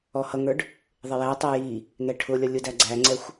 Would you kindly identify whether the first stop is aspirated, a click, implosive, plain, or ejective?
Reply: plain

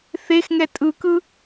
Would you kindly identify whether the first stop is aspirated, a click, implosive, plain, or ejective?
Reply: ejective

